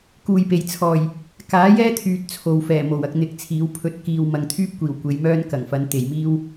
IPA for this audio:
k uː˨ j p e˨˩ j t͡sʰ ɔː˨˩ j | k aː˨˥ j ɛː˥ t̪ʰ yː˨ t̚ t͡sʰ o˨ w f ɛː˨˩ m o˨˩ w ɐ˧ k̚ n̪ ɪ˨˥ k̚ t͡sʰ iː˨˥ w pʰ ɵ˧ t̚ k iː˨ w m ɐ˨ ŋ t̪ʰ yː˥ p̚ kʷ iː˨˩ w kʷ e˨˧ j m œː˥ n k ɐ˨˩ ŋ f ɐ˨˥ n t̪ e˨˩ j m iː˥ w

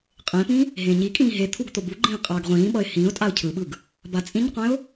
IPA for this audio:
qʼ ẽ p ĩ | ɦ ẽ ɲ i kʼ ĩː ɦ e t̪ʰ u ɡ t̪ o b u ɡ͡ǃ ĩː qʼ aː ɡ ʁʷ ĩː ɓ ʌ ɪ̯ h ĩː ʊ̯ tʼ a ʊ̯ cʰ ɯ ɓ ɯ ɡ | b a t͡sʼ ĩ ɲ qʷ ẽ ʊ̯

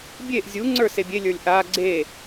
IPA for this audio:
bʲ e ʔ zʲ u ŋ͡ǀ ə˞ s e bʲ e lʲ ə˞ lʲ ʔ a ɡ͡ǀ e

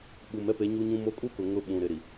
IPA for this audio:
ɓ u˨ m ɛ˦ p e˨˦ ɲ u˦ ɲ ũ˦ m o˦ kʼ u˦ k ʊ˨ ŋ ʊ˦ ɓ ũ˨ ɾ ɪ˨ ɾ i˨

